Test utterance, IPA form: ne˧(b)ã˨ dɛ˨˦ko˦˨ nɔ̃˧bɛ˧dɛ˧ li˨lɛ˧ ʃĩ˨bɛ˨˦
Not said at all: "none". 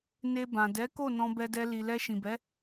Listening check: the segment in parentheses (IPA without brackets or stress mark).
b